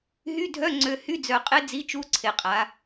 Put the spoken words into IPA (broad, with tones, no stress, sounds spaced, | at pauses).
ɦ y˧˥˧ dʱ œ˧˥˧ ŋ͡ǀ ø˨˩ h y˧˥˧ d͡z œ˨˩ qʼ e˦˥ d͡z i˧˥˧ t͡ʃ u˧˥˧ ǀʰ e˩˧ qʼ a˩˧